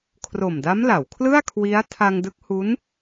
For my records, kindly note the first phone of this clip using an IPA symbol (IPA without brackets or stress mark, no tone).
kʰ